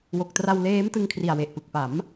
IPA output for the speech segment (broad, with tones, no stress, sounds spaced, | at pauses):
w o˨˩ k̚ t r a˧ w l eː˦˥ m t ɯ˧ ŋ kʰ r i˨˩ a̯ w e˨˩ ʔ p ɯ˨˩ k̚ p a˩˦ m